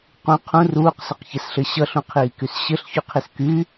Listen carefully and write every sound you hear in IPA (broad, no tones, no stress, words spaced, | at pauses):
qũ qʰũ ruːqsɘqçɛsɬɘ ɕʌɬũqʰiːkys ɕɘɬçyqʰis ky